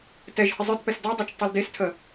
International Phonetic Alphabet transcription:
tɛʒhə zˤə˞tpɛs dɔdˤɛt͡ʃ tˤeldestʰə

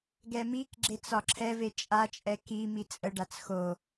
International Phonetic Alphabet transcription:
ɡɛmikɡ͡ǁet͡s ɒǁʰɛve t͡ʃʼat͡ʃʼɛ ki mit͡sʼəɖat͡s xo

